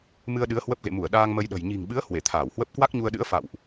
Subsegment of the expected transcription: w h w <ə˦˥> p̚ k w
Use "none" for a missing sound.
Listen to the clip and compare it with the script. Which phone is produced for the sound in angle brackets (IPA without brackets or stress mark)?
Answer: ə˦˥